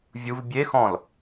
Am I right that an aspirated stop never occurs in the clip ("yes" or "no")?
yes